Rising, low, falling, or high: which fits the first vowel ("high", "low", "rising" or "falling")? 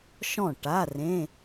falling